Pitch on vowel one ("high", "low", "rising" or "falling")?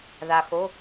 low